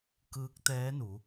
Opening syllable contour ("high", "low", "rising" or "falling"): rising